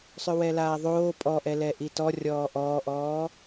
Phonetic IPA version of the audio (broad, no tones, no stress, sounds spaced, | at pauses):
sˤ ʏ w ɛ l aː ðˤ oː pʼ ɔ ʔ ɛ l ɛ ʔ i t ɔ rʲ ɔː ʔ ɔː ʔ ɔː